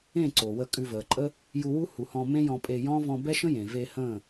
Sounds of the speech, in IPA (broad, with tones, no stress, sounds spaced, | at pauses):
ẽ˦˨ ǀ o˨ w ə˦˨ kʼ ʉ˧ v əː˨ ǃʼ ə˦ | j u˧ w u˦ h u˨ h ɔ̃˧ m ẽ˦ j ɔ̃˧ pʼ e˧ j ɔ̃˦ v ɔ̃˧ b ɛ˦ ʃ ə̃˦ j ẽ˨ v e˧ h ə̃ː˦˨